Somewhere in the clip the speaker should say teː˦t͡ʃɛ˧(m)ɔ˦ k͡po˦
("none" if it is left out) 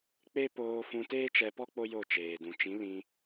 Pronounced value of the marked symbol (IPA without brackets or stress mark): p